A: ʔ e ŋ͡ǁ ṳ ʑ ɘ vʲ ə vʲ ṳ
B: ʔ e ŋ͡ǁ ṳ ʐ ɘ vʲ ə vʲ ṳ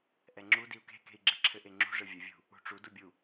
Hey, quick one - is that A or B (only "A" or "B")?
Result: B